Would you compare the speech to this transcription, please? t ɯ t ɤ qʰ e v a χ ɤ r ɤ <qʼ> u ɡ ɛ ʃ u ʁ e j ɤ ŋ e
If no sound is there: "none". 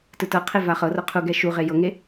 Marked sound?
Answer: qʰ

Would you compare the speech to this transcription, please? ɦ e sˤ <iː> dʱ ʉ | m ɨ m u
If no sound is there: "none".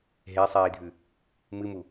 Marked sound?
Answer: iː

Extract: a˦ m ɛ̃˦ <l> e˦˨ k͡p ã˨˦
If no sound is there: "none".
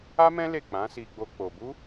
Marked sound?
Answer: l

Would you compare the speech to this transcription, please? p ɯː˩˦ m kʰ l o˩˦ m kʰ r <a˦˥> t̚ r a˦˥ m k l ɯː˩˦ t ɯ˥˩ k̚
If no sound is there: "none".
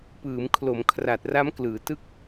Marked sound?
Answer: a˨˩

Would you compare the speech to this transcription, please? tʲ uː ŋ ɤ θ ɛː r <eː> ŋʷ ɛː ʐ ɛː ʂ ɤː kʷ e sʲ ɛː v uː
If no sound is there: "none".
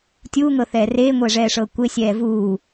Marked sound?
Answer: eː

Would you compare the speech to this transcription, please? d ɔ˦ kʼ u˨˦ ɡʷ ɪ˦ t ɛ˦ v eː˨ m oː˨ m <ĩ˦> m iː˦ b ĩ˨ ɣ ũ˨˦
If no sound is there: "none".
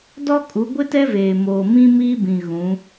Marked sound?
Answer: ĩ˦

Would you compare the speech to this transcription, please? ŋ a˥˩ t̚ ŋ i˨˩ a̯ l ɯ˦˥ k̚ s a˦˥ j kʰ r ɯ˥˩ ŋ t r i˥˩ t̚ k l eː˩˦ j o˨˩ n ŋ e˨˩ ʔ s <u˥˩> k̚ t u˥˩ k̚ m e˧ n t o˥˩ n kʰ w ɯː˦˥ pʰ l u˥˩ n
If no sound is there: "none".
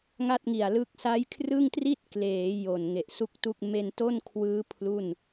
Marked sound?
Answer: u˥˩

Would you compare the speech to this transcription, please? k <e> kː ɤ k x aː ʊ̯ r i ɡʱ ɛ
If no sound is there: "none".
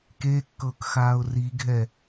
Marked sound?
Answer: e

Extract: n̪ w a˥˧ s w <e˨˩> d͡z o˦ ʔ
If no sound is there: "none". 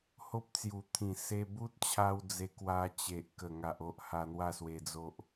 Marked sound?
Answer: e˧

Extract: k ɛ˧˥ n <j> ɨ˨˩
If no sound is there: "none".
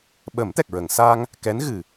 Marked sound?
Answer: ɣ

